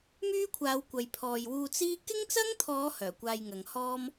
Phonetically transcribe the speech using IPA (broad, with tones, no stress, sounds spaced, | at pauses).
m yː˥ kʷʰ aː˨˧ w kʷ ɐ˨ j pʰ ɔː˨ j w uː˧ t͡s iː˥ k ɪ˥ ŋ t͡s ɐ˥ ŋ t̪ʰ ɔː˨˧ h œː˨˩ kʷ aː˧ j ŋ ɐ˨ ŋ h ɔː˥ m